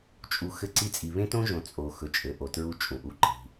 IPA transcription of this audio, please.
t͡ʃʼu˨ xɘ˦ǀi˦ t͡sʼi˨βẽ˦tõ˦ʒõ˨ t͡sʼo˨ xɵ˨t͡ʃʼɘ˨ʔo˨ tɹu˦t͡ʃʼũ˨ ʔu˦˨ǃi̤˦

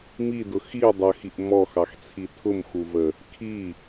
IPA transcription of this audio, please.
midʊ xi dˤʌxiʔ mɔxɑxt͡sʰi tʰʊmxuvə | kʰi

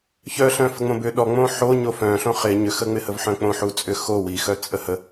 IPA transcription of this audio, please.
çœɬœ̃ fəŋ͡mõbʏ ɗɔŋ͡mõ ħo ɲofœ̃ɬõ χɪ ɲʏxəŋ͡mɪhəv ħœ̃k͡põħut͡sʼʏ xo wixœ t͡sʼəhə

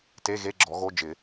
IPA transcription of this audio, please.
te˧˥˧ɣe˧˥˧ ɡ͡ǁɔ˨˩˦ɣo˧˥˧ d͡ʒɪ˨˩˦

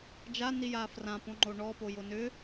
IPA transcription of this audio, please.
d͡ʒanija frãpõŋ͡ǃo ɳɔpojo nʏ

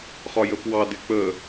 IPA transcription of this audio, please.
χɒjəpwɑ dɪk͡pə

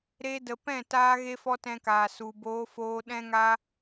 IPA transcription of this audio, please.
ɾe˧də˨ pɛ̃˦˨taː˧ ɣe˦fɔ˦tɛ̃˧kaː˨ su˨ boː˧foː˧ɗɛ̃˦ŋa˦

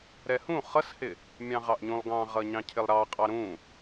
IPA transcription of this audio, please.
ɾɛhũ χʌshɪ | mʲɑ̃ʁɑʔɲũlˠ ɡɑ̃ʁʌ ɲɑ̃cʰɪlˠɾɑqʼɑ ɾũ

